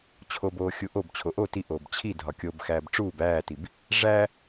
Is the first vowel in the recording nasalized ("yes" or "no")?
no